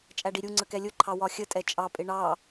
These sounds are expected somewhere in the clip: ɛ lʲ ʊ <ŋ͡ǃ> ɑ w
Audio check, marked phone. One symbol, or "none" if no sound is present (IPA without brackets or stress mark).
ǃʰ